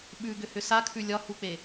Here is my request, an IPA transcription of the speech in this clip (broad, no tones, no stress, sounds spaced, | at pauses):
ɓ ʉ ɡ ʏ h ʏ s a kʰ ʉ lʲ ɒ h u k͡p e